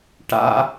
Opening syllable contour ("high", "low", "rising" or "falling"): high